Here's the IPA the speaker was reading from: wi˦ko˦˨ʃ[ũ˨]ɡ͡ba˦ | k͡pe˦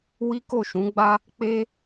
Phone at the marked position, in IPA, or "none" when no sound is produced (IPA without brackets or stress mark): ũ˨˦